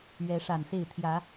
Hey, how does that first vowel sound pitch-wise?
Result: rising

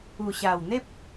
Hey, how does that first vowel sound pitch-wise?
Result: low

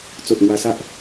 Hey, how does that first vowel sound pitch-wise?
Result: low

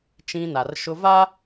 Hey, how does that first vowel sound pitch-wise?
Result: high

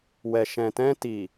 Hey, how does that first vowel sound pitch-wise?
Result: low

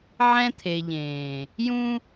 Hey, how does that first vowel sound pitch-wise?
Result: high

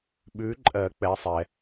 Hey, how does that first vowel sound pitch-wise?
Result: rising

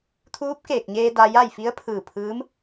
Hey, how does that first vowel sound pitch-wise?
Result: rising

